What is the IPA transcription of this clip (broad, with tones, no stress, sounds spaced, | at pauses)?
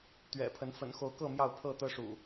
t̪ ɥ ɛ̰˨˩ pʰ ə˨˦ n f ə̰˨˩ n x o˨˦ ʊ̯ k ɤ˥˨ m j ɑ˥˨ ʊ̯ pʰ ɤ˥˨ t̪ ɤ˦ ʂ ṵ˨˩